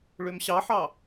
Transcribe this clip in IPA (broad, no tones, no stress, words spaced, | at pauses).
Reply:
ɭømɕɑħɑ